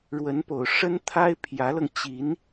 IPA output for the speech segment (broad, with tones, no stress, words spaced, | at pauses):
ɻwə˧˥npo˨˩ʊ̯ ʂə˥nt̪ʰa˥ɪ̯ pʰjä˧˥lɤ˧ŋ t͡ɕi˧˥n